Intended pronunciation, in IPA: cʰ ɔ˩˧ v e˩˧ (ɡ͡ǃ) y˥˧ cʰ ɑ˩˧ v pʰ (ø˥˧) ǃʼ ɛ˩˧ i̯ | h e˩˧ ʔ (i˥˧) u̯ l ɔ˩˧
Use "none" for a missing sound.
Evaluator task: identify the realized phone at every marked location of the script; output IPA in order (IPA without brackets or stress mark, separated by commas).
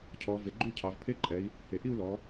ɡ͡ǃ, e˥˧, i˥˧